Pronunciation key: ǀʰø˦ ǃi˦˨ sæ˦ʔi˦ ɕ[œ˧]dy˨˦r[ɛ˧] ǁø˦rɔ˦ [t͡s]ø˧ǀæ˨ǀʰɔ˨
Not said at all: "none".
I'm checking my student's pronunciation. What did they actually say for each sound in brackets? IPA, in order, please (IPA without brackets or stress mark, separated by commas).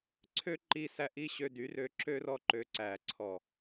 ø˧, ø˧, ǃ